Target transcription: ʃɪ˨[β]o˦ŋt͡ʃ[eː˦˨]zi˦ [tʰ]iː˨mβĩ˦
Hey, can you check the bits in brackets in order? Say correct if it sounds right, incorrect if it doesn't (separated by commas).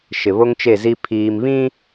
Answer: correct, incorrect, incorrect